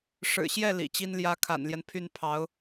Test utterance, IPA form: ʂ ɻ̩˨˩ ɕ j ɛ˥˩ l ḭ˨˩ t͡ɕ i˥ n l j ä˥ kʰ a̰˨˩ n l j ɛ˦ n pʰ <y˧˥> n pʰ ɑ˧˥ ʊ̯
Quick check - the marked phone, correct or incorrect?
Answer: incorrect: y˥˩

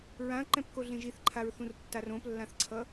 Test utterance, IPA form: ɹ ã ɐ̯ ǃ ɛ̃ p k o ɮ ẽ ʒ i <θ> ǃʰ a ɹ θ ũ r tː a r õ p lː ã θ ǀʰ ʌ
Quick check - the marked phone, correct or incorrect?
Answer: correct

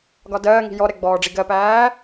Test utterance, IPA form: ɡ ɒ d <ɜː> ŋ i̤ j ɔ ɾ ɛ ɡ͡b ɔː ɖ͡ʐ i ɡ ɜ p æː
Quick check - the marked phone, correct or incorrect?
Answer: correct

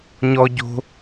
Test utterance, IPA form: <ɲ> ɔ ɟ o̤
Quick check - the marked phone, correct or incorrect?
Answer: correct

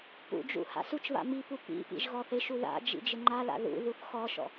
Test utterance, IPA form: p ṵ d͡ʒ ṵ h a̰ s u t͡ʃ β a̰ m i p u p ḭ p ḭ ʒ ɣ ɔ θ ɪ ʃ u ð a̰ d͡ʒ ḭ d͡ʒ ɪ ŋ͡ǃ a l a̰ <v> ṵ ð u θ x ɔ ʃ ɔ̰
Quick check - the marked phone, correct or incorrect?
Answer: incorrect: ð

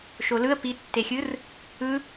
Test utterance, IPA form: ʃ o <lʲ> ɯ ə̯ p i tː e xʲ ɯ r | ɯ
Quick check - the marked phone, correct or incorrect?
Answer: incorrect: l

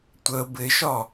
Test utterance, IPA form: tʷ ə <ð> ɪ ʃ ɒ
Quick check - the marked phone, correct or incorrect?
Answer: incorrect: b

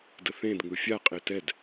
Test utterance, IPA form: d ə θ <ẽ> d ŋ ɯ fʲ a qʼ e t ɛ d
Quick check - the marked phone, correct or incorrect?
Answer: correct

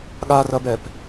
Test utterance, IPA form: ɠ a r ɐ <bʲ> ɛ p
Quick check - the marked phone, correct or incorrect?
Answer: incorrect: b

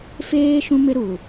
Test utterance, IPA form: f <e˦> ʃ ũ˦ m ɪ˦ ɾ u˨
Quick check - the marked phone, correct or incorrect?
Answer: incorrect: eː˦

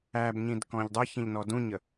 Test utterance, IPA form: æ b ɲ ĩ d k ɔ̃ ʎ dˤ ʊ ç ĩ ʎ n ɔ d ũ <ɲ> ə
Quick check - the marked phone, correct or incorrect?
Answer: correct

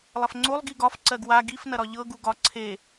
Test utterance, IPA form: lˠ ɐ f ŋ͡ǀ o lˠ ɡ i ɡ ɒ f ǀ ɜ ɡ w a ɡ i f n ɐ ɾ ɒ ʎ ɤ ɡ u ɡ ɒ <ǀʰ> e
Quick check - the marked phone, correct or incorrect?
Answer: correct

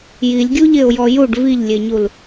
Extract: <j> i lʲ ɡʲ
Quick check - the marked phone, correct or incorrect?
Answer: correct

